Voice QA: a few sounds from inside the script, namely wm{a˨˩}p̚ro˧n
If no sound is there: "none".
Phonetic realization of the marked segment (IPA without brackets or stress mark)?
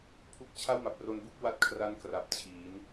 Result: a˨˩